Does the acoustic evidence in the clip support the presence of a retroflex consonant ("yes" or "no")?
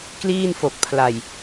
no